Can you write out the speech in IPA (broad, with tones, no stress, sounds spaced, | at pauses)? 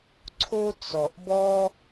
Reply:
ǀʰ o˦ t͡s ɔ˨ ʔ b ɔ˦